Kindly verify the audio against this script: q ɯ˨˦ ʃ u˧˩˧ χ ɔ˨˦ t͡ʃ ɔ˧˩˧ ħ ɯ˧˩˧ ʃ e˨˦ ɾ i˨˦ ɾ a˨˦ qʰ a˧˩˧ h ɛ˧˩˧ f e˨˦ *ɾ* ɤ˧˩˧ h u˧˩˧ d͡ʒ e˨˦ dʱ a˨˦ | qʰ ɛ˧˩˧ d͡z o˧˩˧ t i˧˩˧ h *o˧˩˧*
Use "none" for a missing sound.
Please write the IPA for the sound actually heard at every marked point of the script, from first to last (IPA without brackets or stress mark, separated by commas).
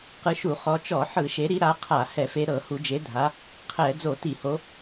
ɾ, o˨˦